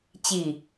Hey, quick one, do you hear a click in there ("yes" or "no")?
no